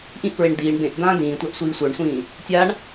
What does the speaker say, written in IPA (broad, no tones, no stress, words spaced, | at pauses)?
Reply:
ʔĩʔpɹeɳ diːɳ bẽʔd̪ãː dĩːtʷaʔsʷiː sʷə˞ɳsʷĩː | tʲaɳ